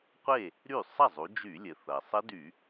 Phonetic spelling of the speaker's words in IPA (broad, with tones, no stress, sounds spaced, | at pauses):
qʷ e˥˩ | ɾ y˥˩ sˤ ɐ˥˩ zˤ u˩˧ d͡ʒ y˧˩˧ lʲ ɘ˩ θ ɐ˩ sˤ ɘ˦˥ d y˧˩˧